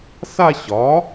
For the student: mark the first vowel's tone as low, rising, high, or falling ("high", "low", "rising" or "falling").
falling